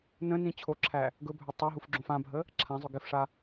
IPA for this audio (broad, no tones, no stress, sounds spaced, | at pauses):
n ə̃ n ĩ t͡ɕʰ o ǁʰ æ | ɡ ɵ bʱ ɵ tˤ o ɦ u f ɡ͡ǁ õ f ã bʱ ə | ǁʰ ã zˤ ɵ ɡ ɪ f ʂ a